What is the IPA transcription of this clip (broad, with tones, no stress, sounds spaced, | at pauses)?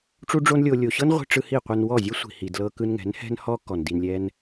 ʈ͡ʂ u˦ ɖ͡ʐ o˦ n lʲ o˧ lʲ o˨ ɕ ɤ˦ n ʁʷ i̤˧ ʈ͡ʂ ɯ˧ h i˦˨ qʷ ɛ˧ n w ɔ˦˨ zʲ ɛ˦ sʷ i̤˨ h i˨ d l ɤ˦ k ɯ˦ n ŋ ɛ̤˨˦ n h ɛ̤˦ n h ɔ˦ k ɔ˨ n d i˧ n lʲ ɛ˦ n